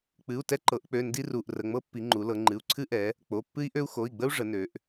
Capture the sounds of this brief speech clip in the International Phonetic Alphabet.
k͡p ɨ˩˧˩ u̯ t ɛ˦ ǃ ɤ˩˧ ʔ k͡p ø˩˧˩ n d i˦ r u˩˧˩ ʔ r ə˩˧˩ ŋ͡m ɤ˦ pː i˩˧ ŋ͡ǃ u˩˧ l ɤ˩˧ ŋ͡ǃ ɨ˩˧˩ u̯ ǀʰ ɨ˦ ʔ ɛ˩˧ | k͡p o˩˧˩ pː ɨ˦ i̯ ʔ ø˦ u̯ x o˩˧˩ i̯ ɡ͡b ə˦ u̯ ʐ ə˩˧ n ø˩˧ ʔ

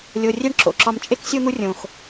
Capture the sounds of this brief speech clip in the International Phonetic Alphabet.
lʲ o˨ rʲ e˦ ɳ ǁ o̰˩ ǁ ɒ˨ m t͡ʃʼ e˥ k sʲ o˥ n̪ u˦ rʲ õ˩ x

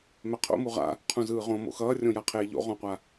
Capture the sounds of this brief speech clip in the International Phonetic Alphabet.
m ɛ qʰ o̰ m u ʁ a̰ | qʰ ũ z ɯː ʁ õ m o̰ x ʌː rʲ õ j a qʰ eː ʎ o̰ ʁ õ qʷ a

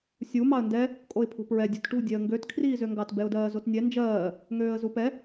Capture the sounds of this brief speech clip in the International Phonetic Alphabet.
sʲ u m ɑ ə̯ n d ɛ | kʼ o ɪ̯ pʰ ṳ p ɹ ɛ dʲ ṳ t ʈ ṳ dʲ ɛ ə̯ ŋ ɡ ø t kʰ r iː z ø ŋ ɡ ɑ t b ɛ ʊ̯ d ɜː z o t nʲ ɛ n d͡ʒ ɜː | ŋ øː ə̯ z u p ɛ

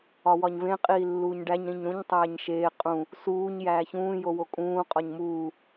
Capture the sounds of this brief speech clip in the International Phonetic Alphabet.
ɒ w ɒ ɲ v ẽ qʼ iː lː uː ɲ ɖ æ ɲ ɾ ĩ ɲ ɾ ũ ɲ tˤ æː ɲ ʃ eː qʼ ũ | s uː ɲ j æː ç ũː j o w o kʼ ũː qʼ ɒ ɲ m uː

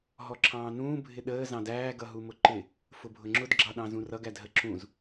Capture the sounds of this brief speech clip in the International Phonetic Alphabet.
ɦ ɔ ǁʰ ɑ̃ː n ũː bʱ ɪ ɗ əː z ɑ̃ d æː ɡ ʌ ɦ u m ʊ ǃ ɪ | f ʊ bʱ ʊ ŋ͡ǁ ʊ d ɡ͡ǁ ɑ ɗ ɑ̃ z ũ r ʌ ɡ æ d ɦ ə ǁ ũ z

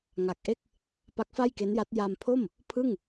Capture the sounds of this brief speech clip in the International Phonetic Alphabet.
ŋ a˨˩ k̚ ʔ e˥˩ k̚ | p a˦˥ k̚ f a˥˩ j k e˦˥ n j a˦˥ t̚ j a˧ m pʰ o˥˩ m | pʰ ɯ˥˩ ŋ

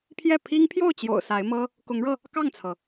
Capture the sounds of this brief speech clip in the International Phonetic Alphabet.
pʰ j ɛ˥˩ pʰ i˥ ŋ pʰ j o˥˩ ʊ̯ t͡ɕ j o̰˨˩ ʊ̯ s a˧˥ ɪ̯ m ɤ˥ | k ʊ˧˥ ŋ ɻ ɤ˧ | k ɑ˥˩ ŋ t͡sʰ ɤ˩

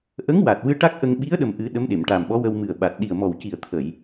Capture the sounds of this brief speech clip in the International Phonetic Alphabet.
ʔ ə˧˥ ŋ w a˨˩ t̚ w ɨ˧ ʈ a˦˥ k̚ ʔ ə˧ ŋ ɓ i˧˥ ə̯ ɗ ə˨˩ m ʔ ɨ˨˩˦ ɗ ə˧˥ m ɗ e˨˩˨ m ʈ a˨˩ m ɓ ɔ˧˥ w ə˧ w m ɨ˨˩ ə̯ ɓ a˨˩ t̚ ɗ i˨˩ ə̯ m ɔ˨˩ w c i˨˩ ə̯ t̪ʰ ə˨˩˨ j

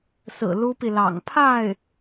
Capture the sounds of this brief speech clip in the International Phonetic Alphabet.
s ɹ̩˨˩ l u˥ p i˨ l ɑ̰˨˩ ŋ pʰ a˥˩ ɪ̯

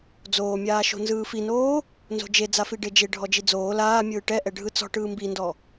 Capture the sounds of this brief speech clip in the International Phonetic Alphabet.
d͡z oː mʲ aː ʃ o̤ n z ɯː f i n oː | n z o̤ d͡ʒ e d͡z a f i ɖ e d͡ʒ e ɖʱ ɔ d͡ʒ i d͡z oː l aː mʲ ɯː ʈ ɛ ʔ ɛ ɖʱ ɯ t͡s ɔ̤ ʈ ɯː m b i n d ɔ

